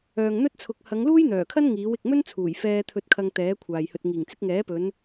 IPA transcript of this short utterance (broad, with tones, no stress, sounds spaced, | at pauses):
œː˨ ŋ n̪ ɵ˥ t̚ t͡sʰ ʊ˨˥ k̚ h ɐ˨˧ ŋ l uː˥ j n̪ œː˨˩ kʰ ɐ˥ n ŋ iː˨˥ w ɪ˨ k̚ m ɵ˥ n t͡sʰ uː˨˩ j f ɛː˧ t̪ʰ ɵ˧ t̚ kʰ ɐ˧ ŋ t̪ ɛː˨˥ kʷʰ aː˨ j h ɵ˧ t̚ ŋ iː˨˩ ŋ t͡s ɪ˨˥ k̚ ŋ ɛː˨˥ p ɵ˨˧ n